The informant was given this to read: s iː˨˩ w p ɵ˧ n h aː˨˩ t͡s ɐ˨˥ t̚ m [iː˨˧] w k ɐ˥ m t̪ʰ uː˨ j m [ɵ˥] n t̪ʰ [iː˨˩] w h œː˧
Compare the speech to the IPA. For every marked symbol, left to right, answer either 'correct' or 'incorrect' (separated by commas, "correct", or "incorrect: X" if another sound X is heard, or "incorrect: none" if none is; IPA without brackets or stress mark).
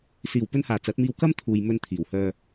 incorrect: iː˧, incorrect: ɵ˧, correct